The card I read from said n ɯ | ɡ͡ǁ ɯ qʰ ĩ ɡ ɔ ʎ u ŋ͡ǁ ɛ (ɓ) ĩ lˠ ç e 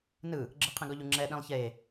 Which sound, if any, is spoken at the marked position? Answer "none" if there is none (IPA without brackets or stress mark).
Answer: ɗ